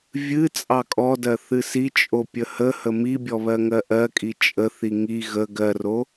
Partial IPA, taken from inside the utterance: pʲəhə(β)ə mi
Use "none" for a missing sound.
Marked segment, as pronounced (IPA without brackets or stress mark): h